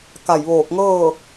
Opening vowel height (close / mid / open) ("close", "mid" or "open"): open